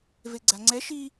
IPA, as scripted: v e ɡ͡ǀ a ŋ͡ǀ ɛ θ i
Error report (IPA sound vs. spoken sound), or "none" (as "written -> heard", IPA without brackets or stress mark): θ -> ʃ